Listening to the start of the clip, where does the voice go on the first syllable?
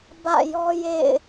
falling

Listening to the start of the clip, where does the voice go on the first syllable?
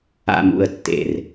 low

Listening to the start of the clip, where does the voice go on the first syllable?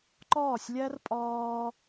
falling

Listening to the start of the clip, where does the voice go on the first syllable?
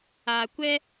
low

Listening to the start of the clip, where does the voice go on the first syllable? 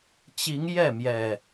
rising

